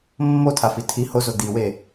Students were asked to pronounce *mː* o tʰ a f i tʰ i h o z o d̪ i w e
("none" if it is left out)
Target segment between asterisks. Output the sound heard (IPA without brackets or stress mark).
mː